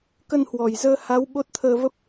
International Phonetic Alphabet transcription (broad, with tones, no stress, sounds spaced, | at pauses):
k ə˧ n h w ɔ˨˩ j z əː˧ h a˨˦ w ɓ o˦˥ t̚ t̪ʰ əː˧ v ə˦˥ p̚